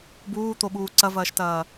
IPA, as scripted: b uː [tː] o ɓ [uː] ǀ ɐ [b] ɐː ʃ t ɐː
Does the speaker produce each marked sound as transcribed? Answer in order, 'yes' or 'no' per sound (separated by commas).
no, yes, no